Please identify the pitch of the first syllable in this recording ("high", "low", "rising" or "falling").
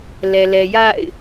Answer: low